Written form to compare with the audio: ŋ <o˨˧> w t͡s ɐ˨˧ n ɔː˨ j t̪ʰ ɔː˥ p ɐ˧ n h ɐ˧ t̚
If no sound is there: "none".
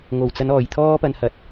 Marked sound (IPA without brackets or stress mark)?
o˨˩